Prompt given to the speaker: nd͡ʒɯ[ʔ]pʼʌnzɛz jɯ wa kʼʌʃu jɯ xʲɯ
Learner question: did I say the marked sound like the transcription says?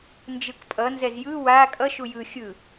no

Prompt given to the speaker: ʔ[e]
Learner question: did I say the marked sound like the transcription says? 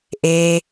yes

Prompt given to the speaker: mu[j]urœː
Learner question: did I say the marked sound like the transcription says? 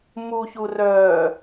no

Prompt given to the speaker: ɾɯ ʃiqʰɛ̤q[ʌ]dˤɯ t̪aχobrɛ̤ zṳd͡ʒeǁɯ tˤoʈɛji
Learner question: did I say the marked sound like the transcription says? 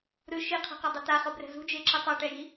yes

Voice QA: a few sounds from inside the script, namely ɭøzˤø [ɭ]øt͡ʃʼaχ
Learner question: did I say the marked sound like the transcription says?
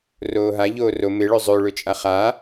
yes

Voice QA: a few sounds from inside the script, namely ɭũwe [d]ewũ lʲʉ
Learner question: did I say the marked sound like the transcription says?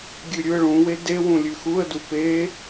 yes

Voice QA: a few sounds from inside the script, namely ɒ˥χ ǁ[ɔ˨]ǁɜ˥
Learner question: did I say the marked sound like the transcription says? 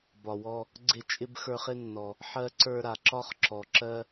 yes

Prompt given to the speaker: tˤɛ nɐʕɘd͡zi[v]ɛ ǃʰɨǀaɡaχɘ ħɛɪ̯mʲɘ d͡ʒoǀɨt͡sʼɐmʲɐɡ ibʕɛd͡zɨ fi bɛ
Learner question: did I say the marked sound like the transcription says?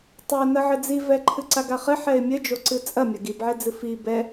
yes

